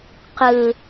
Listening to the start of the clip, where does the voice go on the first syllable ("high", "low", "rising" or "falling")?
high